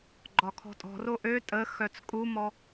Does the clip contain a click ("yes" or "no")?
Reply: yes